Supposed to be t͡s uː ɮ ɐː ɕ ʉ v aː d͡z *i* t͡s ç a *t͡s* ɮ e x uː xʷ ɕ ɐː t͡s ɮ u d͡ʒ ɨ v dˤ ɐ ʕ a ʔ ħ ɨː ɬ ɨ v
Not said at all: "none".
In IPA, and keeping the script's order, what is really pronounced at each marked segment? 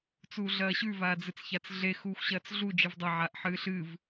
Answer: ɨ, t͡s

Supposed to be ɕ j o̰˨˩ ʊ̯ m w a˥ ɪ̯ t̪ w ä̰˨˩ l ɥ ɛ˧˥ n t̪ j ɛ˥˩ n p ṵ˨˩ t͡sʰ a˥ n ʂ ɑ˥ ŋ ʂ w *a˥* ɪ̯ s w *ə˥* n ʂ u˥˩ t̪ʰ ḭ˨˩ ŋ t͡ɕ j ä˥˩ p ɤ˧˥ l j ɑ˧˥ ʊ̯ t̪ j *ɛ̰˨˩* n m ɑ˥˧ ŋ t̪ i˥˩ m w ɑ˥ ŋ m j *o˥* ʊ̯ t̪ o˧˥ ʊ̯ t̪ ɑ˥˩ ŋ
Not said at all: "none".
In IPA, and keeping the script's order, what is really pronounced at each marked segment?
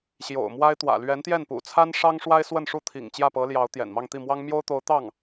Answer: a˥, ə˥˧, ɛ̰˨˩, o˥

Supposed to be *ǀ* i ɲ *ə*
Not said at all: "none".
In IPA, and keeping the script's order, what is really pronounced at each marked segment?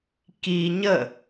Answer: k, ə

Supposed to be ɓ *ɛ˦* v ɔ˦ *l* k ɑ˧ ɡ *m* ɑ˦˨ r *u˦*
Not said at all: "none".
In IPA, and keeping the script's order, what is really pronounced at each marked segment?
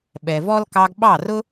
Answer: ɛ˨, l, ɓ, ʊ˦

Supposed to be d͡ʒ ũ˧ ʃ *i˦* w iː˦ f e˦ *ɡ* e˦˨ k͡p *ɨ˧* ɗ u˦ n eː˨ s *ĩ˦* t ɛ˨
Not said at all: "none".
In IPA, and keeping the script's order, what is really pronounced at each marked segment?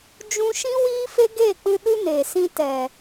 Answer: ĩ˦, ɡ, ɨ˧, ĩ˧

